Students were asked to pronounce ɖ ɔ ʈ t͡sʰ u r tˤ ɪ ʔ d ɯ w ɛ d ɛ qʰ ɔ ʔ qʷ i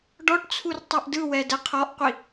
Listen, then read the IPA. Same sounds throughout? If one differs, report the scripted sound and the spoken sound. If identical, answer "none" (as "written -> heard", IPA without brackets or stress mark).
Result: ɪ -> ɛ